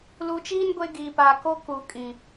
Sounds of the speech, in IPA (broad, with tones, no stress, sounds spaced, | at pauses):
l u˨ t͡ʃ iː˦ n ɡʷ e˦ ɡ iː˨ p aː˨ k o˦ k u˨˦ kʼ ĩ˨